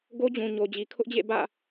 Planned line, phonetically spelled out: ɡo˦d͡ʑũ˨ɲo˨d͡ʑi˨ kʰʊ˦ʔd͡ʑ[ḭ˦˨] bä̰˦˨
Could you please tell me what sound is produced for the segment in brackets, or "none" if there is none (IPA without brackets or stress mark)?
ḛ˦˨